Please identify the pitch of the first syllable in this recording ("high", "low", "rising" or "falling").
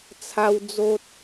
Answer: high